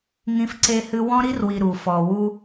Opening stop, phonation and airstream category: click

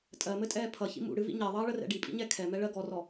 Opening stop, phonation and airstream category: ejective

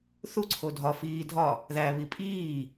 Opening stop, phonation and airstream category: click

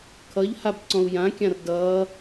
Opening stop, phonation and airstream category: aspirated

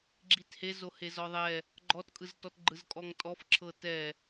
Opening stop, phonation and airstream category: click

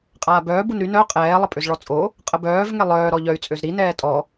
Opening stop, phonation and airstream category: ejective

